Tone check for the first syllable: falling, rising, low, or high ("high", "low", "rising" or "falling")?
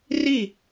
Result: falling